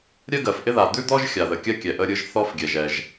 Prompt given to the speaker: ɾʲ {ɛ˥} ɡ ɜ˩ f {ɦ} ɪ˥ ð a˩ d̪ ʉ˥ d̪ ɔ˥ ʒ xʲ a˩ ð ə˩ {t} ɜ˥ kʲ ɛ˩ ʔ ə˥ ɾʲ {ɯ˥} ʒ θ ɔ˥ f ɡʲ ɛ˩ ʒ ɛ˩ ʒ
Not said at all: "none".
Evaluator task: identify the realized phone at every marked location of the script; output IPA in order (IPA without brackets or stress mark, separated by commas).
ɜ˥, ʔ, kʲ, ɯ˥